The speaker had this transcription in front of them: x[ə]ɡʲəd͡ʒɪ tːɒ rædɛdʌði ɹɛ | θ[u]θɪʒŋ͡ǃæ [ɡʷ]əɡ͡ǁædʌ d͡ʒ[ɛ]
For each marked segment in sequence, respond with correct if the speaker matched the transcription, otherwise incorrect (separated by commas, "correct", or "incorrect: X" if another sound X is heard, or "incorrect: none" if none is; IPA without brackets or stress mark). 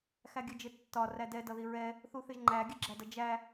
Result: incorrect: æ, correct, incorrect: ɡʲ, incorrect: æ